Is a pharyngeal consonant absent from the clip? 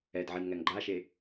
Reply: no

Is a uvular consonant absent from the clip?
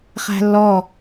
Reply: no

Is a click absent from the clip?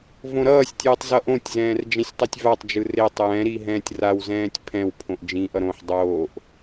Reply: yes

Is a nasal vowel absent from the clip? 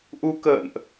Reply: yes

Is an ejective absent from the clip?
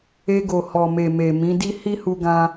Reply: yes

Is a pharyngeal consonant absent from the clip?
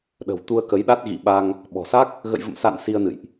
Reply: yes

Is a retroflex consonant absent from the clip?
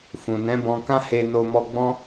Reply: yes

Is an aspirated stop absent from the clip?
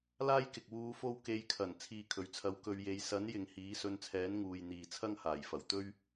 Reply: no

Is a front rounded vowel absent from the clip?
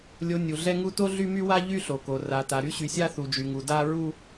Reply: no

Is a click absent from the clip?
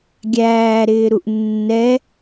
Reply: yes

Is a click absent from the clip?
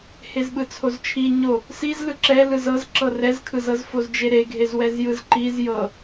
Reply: no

